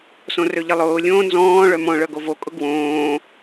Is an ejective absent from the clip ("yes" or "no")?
no